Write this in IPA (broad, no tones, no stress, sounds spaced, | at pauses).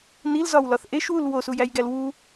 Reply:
n i l z ɒ w l ɒ θ ʔ e ʃ w u l w o s u j æ j ɡ æ l w u